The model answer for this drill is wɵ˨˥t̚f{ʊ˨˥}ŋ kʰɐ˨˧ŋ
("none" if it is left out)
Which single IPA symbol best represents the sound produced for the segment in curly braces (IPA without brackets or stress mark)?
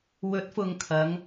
ʊ˨